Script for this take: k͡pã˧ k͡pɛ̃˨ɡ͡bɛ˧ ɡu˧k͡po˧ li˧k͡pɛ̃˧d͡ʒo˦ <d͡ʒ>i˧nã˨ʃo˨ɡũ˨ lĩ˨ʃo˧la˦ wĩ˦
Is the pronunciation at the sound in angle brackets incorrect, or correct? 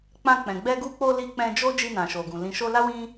correct